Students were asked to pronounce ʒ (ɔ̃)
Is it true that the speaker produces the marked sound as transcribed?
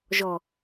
no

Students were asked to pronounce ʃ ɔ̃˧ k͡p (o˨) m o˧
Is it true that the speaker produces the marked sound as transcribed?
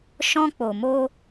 yes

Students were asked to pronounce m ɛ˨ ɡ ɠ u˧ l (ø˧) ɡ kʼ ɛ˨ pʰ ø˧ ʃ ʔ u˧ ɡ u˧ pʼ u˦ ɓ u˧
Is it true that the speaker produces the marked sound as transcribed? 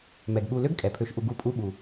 no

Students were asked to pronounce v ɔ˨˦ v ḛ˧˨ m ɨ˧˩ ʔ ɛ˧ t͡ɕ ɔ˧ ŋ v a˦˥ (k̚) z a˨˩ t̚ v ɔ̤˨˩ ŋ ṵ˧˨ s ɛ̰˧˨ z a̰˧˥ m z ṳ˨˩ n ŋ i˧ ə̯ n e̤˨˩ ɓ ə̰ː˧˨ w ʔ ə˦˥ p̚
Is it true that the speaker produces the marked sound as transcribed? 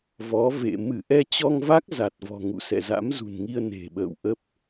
yes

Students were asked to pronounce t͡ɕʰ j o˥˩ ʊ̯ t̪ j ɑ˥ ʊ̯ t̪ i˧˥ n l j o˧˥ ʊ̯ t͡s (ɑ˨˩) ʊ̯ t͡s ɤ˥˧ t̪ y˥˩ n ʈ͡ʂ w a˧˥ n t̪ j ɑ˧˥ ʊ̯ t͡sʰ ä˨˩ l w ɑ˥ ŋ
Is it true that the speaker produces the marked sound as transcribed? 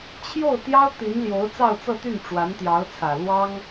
no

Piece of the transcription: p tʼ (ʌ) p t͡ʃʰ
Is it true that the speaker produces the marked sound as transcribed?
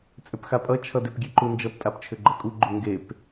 no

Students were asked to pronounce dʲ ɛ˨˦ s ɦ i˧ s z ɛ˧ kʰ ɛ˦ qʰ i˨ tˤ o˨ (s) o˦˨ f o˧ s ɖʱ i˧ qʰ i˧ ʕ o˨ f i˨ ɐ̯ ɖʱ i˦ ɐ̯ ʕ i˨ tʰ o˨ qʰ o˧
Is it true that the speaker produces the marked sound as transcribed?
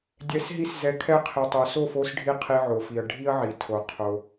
yes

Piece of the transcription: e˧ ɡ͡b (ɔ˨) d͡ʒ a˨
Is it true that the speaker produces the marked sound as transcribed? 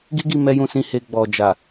yes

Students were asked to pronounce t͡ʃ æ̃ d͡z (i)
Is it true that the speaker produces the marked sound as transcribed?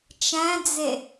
no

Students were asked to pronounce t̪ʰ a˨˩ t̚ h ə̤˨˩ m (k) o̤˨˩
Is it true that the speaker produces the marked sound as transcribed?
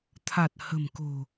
yes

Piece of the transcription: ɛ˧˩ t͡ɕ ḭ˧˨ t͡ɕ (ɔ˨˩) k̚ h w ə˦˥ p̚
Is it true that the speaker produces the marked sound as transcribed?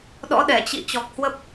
yes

